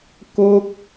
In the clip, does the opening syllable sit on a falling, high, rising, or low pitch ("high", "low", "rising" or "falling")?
high